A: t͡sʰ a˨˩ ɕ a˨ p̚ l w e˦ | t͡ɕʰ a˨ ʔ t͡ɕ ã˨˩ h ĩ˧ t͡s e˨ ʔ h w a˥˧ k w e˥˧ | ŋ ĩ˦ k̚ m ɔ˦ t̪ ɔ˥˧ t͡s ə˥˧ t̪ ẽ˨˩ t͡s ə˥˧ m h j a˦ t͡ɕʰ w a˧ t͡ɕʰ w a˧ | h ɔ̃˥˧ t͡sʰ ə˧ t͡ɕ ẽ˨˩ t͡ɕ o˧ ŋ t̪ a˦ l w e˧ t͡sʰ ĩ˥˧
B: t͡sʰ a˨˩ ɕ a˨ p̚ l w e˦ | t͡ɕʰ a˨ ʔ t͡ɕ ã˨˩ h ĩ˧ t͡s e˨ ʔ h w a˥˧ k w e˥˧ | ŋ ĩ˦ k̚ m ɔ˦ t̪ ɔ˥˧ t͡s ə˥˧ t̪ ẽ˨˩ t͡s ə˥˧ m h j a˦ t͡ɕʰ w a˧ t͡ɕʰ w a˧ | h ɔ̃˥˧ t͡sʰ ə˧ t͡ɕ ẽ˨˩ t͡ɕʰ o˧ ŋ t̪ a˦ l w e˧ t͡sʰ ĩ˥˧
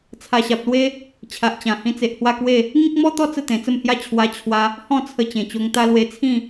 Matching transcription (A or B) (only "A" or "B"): A